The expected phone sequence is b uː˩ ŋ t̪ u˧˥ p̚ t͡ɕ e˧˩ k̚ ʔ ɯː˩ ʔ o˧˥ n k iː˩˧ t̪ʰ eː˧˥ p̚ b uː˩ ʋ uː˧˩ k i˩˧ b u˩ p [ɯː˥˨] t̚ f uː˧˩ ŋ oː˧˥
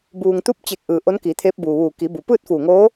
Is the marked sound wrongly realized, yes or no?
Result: no